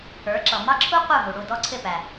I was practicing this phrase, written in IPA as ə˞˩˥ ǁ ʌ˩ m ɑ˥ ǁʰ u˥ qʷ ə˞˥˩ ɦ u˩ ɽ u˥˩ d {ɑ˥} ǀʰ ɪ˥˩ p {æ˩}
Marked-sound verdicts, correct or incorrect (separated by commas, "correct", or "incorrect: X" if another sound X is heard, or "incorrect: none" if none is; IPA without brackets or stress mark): incorrect: ɔ˥, correct